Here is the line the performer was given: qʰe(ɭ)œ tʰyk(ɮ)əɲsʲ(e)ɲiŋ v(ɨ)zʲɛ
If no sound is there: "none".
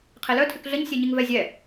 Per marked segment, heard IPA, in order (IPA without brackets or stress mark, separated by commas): l, ɮ, ɛ, ɛ